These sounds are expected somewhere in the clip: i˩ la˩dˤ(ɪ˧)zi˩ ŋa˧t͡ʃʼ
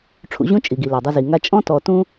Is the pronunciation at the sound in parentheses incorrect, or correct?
correct